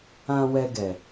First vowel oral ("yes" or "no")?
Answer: no